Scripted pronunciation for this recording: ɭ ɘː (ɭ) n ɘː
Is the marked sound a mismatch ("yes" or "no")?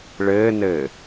yes